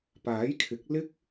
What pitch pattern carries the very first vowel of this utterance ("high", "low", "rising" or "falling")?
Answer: rising